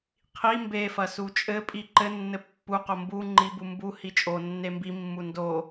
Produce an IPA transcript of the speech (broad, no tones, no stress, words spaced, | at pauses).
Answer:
qʰi mbefɐ sut͡ʃʼɘpʼi ǃɘnːɘ pːuqo mbu ŋ͡ǃibu mbu hit͡ʃʼonːe mbimːu ndo